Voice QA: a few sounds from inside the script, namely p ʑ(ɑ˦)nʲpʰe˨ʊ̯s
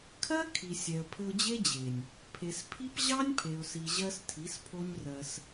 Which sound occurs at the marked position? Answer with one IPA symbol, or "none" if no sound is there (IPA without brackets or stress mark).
ɑ˦